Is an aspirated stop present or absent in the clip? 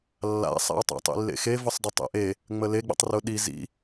absent